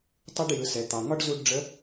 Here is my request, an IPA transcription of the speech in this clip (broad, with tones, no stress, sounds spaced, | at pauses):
tˤ ɯ˧ ɖ j ɯ˩ s ɛ˩ t̪ ɑ˩ ŋ ɒ˥ ɖ z u˧ ɖ ɖ͡ʐ ə˧˥